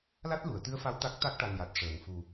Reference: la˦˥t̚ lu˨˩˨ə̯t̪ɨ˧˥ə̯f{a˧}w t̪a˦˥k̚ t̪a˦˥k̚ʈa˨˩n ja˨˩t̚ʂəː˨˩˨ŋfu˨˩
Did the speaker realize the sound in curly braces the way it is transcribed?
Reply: no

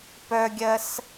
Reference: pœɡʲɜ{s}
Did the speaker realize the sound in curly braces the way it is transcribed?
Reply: yes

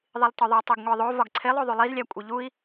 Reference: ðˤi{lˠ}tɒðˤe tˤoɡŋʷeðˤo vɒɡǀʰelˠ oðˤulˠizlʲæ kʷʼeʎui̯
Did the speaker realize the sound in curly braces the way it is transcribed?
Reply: yes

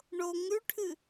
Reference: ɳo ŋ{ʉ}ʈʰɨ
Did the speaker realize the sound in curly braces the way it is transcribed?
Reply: yes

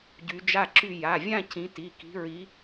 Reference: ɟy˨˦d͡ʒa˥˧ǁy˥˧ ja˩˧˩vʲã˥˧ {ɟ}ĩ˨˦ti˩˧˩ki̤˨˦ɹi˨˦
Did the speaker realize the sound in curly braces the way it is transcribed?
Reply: no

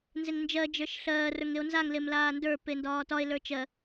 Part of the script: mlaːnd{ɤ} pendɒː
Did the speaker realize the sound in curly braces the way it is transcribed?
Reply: no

